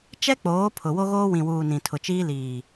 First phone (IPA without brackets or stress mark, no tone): t͡ʃ